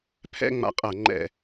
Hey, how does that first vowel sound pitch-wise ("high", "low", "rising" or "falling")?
high